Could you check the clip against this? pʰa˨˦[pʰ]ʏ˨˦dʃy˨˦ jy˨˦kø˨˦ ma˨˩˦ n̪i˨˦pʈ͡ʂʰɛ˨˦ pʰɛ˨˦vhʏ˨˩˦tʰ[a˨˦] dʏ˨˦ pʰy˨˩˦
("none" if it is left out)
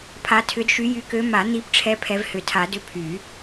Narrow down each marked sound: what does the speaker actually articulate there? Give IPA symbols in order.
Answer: tʰ, a˨˩˦

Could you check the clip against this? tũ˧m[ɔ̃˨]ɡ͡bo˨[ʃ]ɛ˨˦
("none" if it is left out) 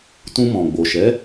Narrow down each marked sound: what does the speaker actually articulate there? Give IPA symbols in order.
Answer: ɔ̃˨, ʃ

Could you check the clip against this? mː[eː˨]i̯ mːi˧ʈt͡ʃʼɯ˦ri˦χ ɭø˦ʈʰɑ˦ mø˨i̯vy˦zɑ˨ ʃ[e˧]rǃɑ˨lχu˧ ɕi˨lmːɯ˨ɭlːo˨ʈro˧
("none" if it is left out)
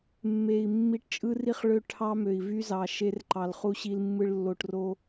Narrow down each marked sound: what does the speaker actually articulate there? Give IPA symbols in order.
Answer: e˨, e˧

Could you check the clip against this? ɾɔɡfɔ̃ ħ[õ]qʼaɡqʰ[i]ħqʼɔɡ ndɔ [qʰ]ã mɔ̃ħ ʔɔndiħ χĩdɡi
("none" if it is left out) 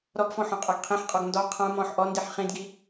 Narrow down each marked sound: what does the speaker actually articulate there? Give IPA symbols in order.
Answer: ɔ̃, ĩ, qʰ

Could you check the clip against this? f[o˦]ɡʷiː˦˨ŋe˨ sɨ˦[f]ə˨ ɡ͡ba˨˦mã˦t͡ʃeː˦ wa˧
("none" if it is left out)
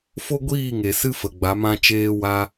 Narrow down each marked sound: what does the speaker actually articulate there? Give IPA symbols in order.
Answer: o˦, f

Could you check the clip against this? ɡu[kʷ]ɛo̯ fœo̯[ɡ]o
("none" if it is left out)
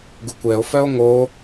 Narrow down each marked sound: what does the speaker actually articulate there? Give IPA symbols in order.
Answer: kʷ, ŋ

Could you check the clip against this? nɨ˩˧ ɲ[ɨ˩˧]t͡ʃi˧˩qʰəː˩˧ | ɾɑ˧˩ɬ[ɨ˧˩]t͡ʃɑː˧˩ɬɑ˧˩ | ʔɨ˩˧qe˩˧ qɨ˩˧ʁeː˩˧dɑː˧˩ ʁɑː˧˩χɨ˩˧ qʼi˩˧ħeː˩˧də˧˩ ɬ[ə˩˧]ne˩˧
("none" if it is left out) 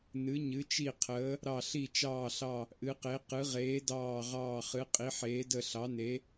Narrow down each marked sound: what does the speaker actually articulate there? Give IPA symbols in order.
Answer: ɨ˩˧, i˧˩, ɑ˩˧

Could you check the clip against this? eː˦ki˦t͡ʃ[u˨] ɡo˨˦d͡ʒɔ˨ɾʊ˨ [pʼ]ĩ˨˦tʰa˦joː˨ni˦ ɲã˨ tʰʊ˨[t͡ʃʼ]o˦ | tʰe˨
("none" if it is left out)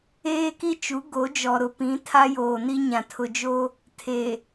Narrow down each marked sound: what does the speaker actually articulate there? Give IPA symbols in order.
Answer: u˨˦, p, d͡ʒ

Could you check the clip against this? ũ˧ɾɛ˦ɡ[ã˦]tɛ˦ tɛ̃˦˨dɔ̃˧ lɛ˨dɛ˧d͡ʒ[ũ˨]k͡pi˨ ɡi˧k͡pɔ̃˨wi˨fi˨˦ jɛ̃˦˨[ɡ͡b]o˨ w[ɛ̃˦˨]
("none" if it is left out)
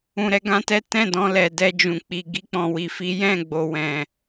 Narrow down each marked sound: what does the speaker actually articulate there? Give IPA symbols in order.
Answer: ã˦, ũ˨, ɡ͡b, ɛ̃˨

